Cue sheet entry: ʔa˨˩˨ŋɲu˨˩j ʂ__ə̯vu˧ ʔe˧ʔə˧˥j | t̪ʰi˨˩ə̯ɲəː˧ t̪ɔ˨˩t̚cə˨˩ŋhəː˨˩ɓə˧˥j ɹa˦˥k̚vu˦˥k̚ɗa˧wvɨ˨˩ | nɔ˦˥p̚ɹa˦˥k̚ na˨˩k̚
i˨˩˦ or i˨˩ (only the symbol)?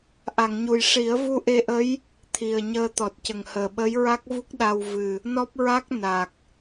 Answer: i˨˩˦